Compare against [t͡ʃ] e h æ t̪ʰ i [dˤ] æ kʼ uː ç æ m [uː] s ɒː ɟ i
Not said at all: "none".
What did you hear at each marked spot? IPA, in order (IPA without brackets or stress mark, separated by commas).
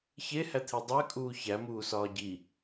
ç, dˤ, uː